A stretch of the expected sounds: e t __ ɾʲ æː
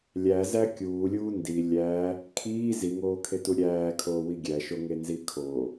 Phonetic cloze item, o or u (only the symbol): u